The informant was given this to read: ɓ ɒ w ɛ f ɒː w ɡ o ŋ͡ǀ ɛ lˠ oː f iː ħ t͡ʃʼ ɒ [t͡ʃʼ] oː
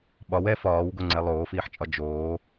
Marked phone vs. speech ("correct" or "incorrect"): incorrect